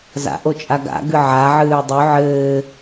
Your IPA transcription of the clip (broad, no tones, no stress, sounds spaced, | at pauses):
z a̰ ʔ o t͡ʃʼ a ɡ a̰ ɡ ɨ ʕ a ʕ ɨː dˤ y ʕ ɘː